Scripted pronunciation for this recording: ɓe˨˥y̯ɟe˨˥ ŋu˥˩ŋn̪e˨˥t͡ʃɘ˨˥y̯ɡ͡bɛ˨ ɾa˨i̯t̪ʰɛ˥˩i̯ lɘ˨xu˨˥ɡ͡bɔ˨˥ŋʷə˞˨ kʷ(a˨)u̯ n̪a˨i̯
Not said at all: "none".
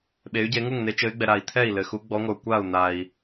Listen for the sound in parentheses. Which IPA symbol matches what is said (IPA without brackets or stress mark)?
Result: a˥˩